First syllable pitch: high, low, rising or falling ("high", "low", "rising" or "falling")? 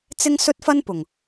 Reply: high